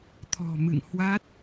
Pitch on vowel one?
low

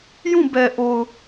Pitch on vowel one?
falling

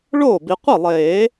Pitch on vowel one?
falling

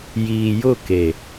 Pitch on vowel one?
low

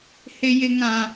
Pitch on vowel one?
high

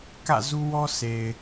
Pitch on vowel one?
falling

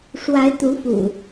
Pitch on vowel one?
rising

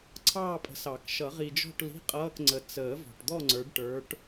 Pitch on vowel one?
falling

